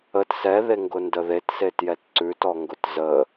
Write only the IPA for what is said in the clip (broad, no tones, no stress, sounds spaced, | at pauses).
ə t s ɛ ð e ŋ ɡ ʊ n d ə ð e t s e t j ɛ t ǀ ʉ t ɔ ŋ ɡ ʊ t z ə